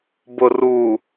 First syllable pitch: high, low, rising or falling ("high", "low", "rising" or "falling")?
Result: low